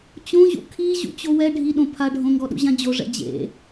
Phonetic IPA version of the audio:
t͡ɕ õ ʑ ṵ kʰ i ʑ ṵ t͡ɕ o w ɛ ɖʱ i ɗ õ pʰ a ɖʱ õ ŋ ɡ ɔ ɗ ṵ ʑ ã d͡ʑ o ʐ ɛ̰ d͡ʑ ḛ

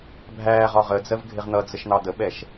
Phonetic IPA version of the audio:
bʱ æː ʁ ɒ ʁ ə d͡z ɜ v ɡʱ ɪ ʁ n̪ ʌ d͡z ə ʃ n̪ ɑ d̪ ə ɓ ɛ ʃ

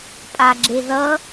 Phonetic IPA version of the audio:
pʼ a ɡ͡ǁ e ð ʌ

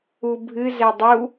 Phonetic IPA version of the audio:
u bʱ ɨ z ɛ dˤ u

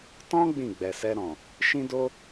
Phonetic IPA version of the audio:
t ɔ̃˦ ɡ͡b ĩ˦˨ ɡ͡b ɛ˨ s ɛ˧ ɾ ɔ̃˨ | ʃ ĩ˦ d o˦

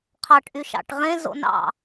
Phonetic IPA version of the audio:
qʰ ɑ ʈ ʔ y ʃ ɑ̰ ʈ ʁ ẽ z o̰ n ɑ̰

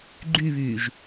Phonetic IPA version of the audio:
ɡ͡ǃ y β yː ʒ

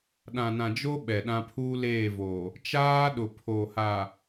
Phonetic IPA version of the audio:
ɗ ã˨ n ã˨ d͡ʒ o˦ ɓ ɛ˨ ɗ ã˦ pʰ uː˦ l eː˦˨ v o˨ | t͡ʃ aː˦ ɗ ʊ˨ pʰ o˨ h a˨

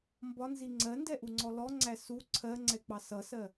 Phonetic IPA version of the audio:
m b ɒ n z i ŋ͡ǀ ɜ n d ɛ ʔ u ŋ͡ǀ ɔ l ɔ ŋ͡ǀ æ s u ǀʰ ɜ ŋ͡ǀ ɛ k͡p ɑ s ʌ s ɜ

